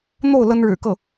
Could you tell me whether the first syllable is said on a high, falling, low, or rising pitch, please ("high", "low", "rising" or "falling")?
falling